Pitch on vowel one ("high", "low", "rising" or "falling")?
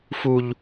high